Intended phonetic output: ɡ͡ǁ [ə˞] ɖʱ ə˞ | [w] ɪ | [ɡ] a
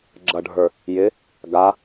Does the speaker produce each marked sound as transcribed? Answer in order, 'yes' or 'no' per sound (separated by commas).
no, no, yes